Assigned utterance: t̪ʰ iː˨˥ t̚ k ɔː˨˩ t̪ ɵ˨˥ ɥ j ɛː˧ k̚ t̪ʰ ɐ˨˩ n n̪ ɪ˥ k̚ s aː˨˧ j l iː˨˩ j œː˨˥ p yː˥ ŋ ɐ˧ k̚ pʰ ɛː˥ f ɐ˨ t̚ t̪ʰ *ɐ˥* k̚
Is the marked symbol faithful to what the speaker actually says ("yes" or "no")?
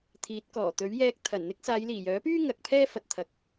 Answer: no